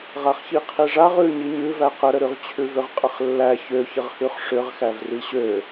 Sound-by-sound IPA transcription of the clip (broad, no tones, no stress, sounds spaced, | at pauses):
ʁ a χ ç i qʰ i ʐ a ʁ ʉ ɲ i ɲ ʉ v æ q ə ɾ ə ɾ ʉ ʁ t͡ɕʰ ʉ v ʏ ʁ qʼ ə χ lː æ ç ø ç ə ʁ h ʉ χ ʂ ʏ ʁ x æ v r i ɕ ø